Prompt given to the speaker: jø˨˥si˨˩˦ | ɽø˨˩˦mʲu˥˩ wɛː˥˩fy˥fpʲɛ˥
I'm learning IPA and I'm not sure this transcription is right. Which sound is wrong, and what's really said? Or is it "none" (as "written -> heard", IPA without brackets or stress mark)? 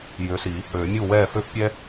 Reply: y˥ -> ø˥